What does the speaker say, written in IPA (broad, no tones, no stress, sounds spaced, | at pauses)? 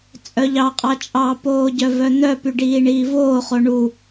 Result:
t͡sʼ œ ʎ ɑ qʼ ɑ t͡ʃʼ ɑ p oː ɟ œ v œ n̪ œ p y ɖ iː ɳ iː v oː χ o ɳ u